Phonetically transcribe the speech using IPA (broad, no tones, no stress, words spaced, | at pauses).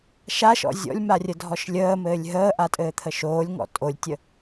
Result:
ʃaʃɔ̰ zʲɔ̰lʲmarʲədʱɔʃ lʲəːmɘːlʲ ɦəːʔatʼɘːt̪ʰə ʃoːlʲŋɔ̰ tʼolʲtʲə